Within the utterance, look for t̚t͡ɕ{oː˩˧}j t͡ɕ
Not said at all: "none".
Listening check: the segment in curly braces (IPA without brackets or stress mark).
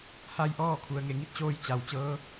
oː˧